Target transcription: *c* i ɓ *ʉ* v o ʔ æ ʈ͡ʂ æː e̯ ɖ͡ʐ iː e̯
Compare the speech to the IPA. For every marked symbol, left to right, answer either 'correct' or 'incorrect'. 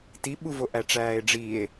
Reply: incorrect: t, incorrect: u

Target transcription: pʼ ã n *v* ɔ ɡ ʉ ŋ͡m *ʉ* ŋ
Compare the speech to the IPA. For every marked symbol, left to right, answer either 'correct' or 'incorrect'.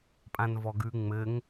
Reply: correct, incorrect: ɘ

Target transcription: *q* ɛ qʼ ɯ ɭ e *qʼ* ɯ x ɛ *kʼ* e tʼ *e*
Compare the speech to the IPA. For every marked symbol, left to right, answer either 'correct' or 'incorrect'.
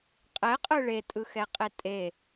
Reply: incorrect: qʼ, incorrect: tʼ, incorrect: qʼ, correct

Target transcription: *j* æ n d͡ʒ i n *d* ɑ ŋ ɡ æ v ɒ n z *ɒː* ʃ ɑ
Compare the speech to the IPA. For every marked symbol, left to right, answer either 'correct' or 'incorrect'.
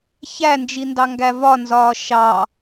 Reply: incorrect: ç, correct, correct

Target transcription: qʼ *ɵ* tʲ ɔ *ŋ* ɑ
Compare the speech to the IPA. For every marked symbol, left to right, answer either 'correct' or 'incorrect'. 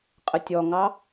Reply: incorrect: ə, correct

